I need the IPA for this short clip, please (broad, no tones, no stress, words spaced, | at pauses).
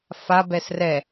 fa bɛsrɛ